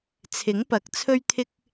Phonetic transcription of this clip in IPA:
t͡sʰ ɪ˨˥ ŋ p ɐ˨˥ k̚ t͡sʰ ɵ˥ ɥ t̪ʰ ɪ˥ k̚

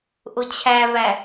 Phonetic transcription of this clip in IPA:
ʔ ʊ t͡ɕʰ æ v æ

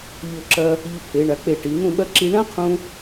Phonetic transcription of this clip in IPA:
ʎ o˧˩ ǁ ɐ˧ | ʎ u˧ pʰ e˩˧ ɳ a˩˧ k͡p e˧˩ ʈ i˩˧ n̪ ũ˥˧ ɓ ɐ˥ ǁ i˧ ɳ ã˥ qʰ ũ˧

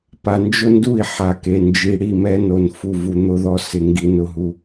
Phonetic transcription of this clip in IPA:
p a˨ n d͡ʒ ʊ˦ n d u˦˨ i̯ ħ a˨ k e˨ n d͡ʒ i˨ ɽ i˦˨ m ɛ˦ n o˨ n f u˨ v u˨ n̪ ʊ˦ ð ɔ˦ s ɪ˨ ŋ ɡ i˦ n ʊ˦ ɦ u˦

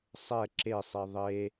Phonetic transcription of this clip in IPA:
sˤ ɛ ǁ e sˤ i ðˤ e

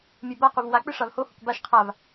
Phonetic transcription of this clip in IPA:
mʲ e b a q u v w a k͡p ɨ ʂ a v h o h u k b a ʃ qʰ a v

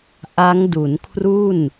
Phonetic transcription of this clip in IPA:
ʔ a˦˥ ŋ d u˩˦ n kʰ r u˥˩ n

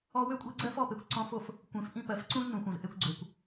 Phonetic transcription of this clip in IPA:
ɔ˧ w ø˦ kʷʼ i˧ ɡ͡ǀ ɜ˦ f ɔ˦ p e˨ kʷ ǀ ɔ̃˧ f o˦˨ f | kʷ ẽ˨ f ʔ ĩ˧ p ɜ˨ f ǀ ũ˦ z n ũ˨ xʷ ɐ̃˨ z ʔ e˧ kʷ ɡ͡ǀ ø˨ kʷ

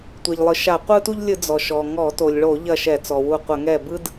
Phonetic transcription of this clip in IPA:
tʷ ɛ˩ ʎ lˠ ɯ˩ ʃ a˧˩˧ qʷ ɯ˦ t u˦ ʎ lʲ ɯ˧˩˧ d͡z ɔ˩ ʃ ɔ˩ ŋ ɔ˧˩˧ t o˩ lʲ ɭ o˧˩˧ ʎ ɐ˧˩ ʃ ɛ˧˩˧ t͡s ɔ˩ w u˧˩ qʷ ə˧˩˧ ŋ ɛ˧˩ b ɯ˦ d

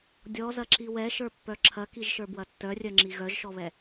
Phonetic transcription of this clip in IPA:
dʲ ɔ z ɐ ǁ i w ɛ ʃ ə˞ pː œ ǁʰ ɐ k i ʒ ʃ ə˞ b w ɐ tː œ rʲ œ ŋ͡ǁ i ɣ œ ʒ ʃ ɔ β ɛ

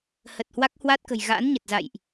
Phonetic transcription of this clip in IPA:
h ə˨˩ t̚ h w a˦˥ k̚ h w a˦˥ t̚ k ə̤˨˩ j ɣ a̰ː˧˥ n ɲ ə˨˩ t̚ z a̰˧˨ j ʔ

